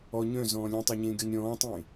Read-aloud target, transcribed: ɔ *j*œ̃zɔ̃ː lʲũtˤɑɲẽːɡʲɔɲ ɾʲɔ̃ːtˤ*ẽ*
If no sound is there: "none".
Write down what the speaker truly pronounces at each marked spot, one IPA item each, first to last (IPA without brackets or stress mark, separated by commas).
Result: ɲ, ẽ